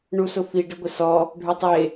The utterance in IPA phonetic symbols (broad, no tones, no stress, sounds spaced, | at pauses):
ɳ u s ʊ f i ɖ ɪ ɡʷ ɪ s ɔ | ɖʱ ʊ tˤ e